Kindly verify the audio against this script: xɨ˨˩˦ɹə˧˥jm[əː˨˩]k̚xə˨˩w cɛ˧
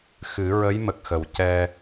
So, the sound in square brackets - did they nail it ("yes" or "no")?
no